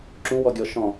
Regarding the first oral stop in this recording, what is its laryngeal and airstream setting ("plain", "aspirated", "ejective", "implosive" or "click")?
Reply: click